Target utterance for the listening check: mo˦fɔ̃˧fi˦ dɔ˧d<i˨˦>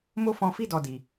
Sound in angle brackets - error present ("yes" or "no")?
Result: yes